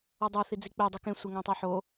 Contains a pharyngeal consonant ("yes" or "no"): yes